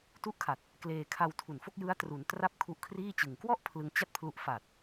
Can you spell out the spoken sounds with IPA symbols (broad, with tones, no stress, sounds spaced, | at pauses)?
t u˦˥ ʔ kʰ a˨˩ t̚ | k l eː˧ kʰ a˧ w tʰ u˨˩ n f o˥˩ k̚ j ɯ˦˥ a̯ t r u˩˦ n t r a˥˩ p̚ kʰ u˦˥ ʔ kʰ r iː˥˩ t͡ɕ ɯ˨˩ ŋ k w ɔ˥˩ ʔ pʰ l ɯ˧ ŋ t͡ɕ a˥˩ t̚ pʰ l u˦˥ ʔ f a˨˩ t̚